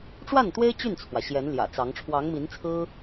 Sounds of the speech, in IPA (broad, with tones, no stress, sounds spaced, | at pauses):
ʈ͡ʂ w a˥˩ n t̪ w e˥ ɪ̯ t͡ɕ y˥˩ n t͡sʰ w ä˩ ɕ j ɛ˧˥ n l j ä̰˨˩ t͡s ɑ˧˥ ŋ ʈ͡ʂʰ w ɑ˧˥ ŋ m i˧˥ n t͡sʰ ɹ̩˥